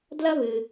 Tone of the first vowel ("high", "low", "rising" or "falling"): high